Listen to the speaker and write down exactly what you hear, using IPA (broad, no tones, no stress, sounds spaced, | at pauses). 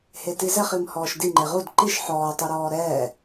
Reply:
h e t i z ɛ χ i m h ɔː ʃ d i ŋ͡ǃ e ʁ u d ǃ i ʃ ħ ɔː tˤ o ɾ ɔː ɾ ɛː